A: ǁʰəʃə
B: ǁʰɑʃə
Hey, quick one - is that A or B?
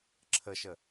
A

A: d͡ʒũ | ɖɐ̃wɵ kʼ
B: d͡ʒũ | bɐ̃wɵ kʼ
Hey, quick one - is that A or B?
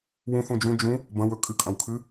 B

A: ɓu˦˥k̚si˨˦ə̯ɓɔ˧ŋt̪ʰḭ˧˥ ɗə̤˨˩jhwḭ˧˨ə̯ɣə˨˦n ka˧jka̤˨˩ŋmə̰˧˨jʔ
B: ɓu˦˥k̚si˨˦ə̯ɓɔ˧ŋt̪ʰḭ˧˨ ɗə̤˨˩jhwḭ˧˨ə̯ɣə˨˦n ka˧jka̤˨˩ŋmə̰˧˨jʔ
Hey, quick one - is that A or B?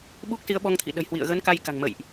B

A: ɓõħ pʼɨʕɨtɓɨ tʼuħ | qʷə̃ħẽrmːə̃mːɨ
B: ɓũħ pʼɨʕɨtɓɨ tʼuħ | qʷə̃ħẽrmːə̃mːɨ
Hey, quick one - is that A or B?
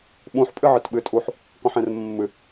B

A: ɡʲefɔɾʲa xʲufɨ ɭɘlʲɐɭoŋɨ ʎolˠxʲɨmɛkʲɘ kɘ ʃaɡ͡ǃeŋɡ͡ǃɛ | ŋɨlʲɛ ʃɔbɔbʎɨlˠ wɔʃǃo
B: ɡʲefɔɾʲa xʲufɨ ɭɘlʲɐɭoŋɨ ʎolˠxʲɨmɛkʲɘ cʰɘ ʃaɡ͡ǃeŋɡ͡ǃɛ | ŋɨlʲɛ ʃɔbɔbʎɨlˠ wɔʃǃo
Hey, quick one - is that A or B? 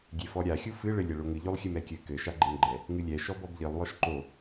A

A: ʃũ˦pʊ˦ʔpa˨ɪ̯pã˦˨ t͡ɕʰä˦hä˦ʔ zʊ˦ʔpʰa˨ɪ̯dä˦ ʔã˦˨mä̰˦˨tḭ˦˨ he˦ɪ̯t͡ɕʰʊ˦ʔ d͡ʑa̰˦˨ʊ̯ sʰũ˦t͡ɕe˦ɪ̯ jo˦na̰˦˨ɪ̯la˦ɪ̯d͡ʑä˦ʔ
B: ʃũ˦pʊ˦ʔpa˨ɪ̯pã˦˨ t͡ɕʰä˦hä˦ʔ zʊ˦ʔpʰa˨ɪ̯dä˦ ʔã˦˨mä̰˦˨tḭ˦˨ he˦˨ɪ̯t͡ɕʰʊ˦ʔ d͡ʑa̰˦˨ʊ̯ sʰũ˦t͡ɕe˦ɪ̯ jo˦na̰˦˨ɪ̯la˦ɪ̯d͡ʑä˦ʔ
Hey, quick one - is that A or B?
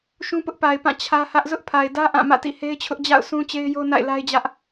A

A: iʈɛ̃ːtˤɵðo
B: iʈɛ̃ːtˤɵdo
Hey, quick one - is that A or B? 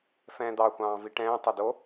B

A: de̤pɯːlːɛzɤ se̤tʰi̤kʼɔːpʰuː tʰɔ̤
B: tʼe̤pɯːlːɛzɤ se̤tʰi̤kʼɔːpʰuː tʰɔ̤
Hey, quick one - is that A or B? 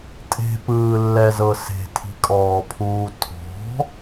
B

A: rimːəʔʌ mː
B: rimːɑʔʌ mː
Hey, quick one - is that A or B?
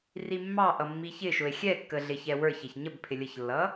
B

